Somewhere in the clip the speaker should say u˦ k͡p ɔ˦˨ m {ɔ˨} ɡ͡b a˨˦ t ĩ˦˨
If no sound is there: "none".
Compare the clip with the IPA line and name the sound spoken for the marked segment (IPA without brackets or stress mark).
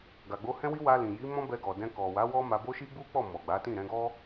ɔ˨